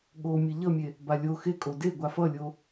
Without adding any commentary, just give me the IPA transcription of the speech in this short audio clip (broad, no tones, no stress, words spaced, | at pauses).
ɠo mʲɛʎʌmʲe | balʲo xekʼo de ɡʷafʌlʲo